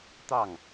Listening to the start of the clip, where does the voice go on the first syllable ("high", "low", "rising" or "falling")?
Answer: falling